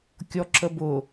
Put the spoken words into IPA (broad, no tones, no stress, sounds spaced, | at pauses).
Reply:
kʲ ɔ ǁ ə b ʊ